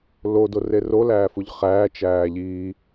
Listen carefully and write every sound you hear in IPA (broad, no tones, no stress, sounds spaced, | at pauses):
l o d o r e r o l æː f u ʎ χ æː t͡ʃ æː ʎ i